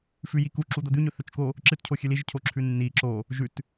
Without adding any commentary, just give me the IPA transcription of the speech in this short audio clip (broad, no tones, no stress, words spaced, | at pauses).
fʉjiku ǁud̪ɐd̪ʉɲɵ θɵt͡ʃko | ǁɨtcʰo xʲʉliʒ cʰoǁʰʉnːi ǁo | ʒʉt